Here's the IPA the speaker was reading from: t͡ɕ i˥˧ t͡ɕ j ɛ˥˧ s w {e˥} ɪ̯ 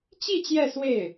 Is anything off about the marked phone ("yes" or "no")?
yes